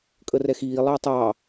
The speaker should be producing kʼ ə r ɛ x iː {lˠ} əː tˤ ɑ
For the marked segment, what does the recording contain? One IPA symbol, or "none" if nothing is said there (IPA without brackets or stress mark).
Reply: lˠ